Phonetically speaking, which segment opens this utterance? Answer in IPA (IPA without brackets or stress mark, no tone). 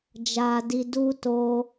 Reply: d͡ʒ